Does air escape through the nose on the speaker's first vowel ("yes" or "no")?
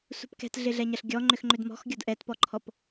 no